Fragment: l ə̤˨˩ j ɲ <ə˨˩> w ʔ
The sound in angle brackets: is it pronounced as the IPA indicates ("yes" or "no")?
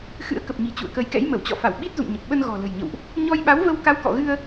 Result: no